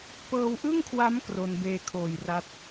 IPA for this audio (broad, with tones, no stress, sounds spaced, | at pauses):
p ɤː˧ w ʔ ɯ˥˩ ŋ kʰ w a˦˥ m k r o˧ n b eː˧ kʰ oː˨˩ j r a˦˥ t̚